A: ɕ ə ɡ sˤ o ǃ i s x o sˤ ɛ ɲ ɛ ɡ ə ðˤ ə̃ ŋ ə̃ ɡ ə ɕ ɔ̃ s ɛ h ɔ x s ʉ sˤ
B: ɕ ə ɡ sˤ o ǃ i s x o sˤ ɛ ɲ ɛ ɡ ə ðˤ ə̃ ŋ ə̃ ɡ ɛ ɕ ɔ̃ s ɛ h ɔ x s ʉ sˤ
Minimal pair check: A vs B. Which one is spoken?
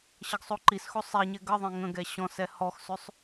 B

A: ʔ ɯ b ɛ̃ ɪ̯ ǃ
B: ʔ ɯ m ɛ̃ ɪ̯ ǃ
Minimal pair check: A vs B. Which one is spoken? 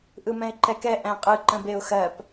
B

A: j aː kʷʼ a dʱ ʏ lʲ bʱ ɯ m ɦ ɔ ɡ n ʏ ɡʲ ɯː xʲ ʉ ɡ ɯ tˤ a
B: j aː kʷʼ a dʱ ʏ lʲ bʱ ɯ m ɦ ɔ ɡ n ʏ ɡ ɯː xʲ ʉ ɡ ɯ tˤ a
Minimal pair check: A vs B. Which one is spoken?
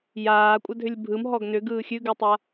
B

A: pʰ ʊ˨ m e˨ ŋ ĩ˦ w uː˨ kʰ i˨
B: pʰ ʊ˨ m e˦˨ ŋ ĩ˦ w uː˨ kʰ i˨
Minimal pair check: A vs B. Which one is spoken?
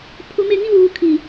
B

